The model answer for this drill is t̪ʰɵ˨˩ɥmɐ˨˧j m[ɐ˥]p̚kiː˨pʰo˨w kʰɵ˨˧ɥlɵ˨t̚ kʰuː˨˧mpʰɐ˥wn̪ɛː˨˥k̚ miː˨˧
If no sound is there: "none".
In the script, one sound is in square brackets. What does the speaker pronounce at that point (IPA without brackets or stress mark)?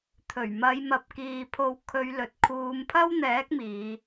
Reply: ɐ˨